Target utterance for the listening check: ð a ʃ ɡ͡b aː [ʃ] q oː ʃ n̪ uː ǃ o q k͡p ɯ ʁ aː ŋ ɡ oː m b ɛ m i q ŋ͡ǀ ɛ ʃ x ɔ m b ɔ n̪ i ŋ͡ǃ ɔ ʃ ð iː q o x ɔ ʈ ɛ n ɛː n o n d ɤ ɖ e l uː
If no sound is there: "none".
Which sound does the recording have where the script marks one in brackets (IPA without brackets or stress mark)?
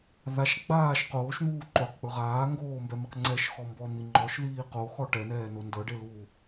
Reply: ʃ